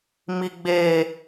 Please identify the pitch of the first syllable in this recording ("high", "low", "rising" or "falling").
high